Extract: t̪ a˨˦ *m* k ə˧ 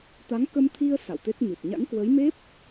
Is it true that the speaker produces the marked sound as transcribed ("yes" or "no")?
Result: no